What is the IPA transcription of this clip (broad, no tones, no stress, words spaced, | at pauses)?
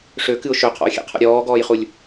ʂøkɨʊ̯ ʃøqʰɔ̰ʊ̯xʲḛqʰɔ̰ ɾʲɔːɡɔːjχulʲ